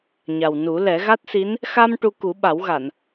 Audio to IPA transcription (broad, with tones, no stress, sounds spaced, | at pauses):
ɲ a˨˩ w n u˨˩˦ l ɛ˨˩˦ ɣ a˦˥ t̚ s i˧˥ n | x a˧ m ʈ u˧ k u˨˩˦ ɓ a˨˩˦ w ɣ a˨˩˨ n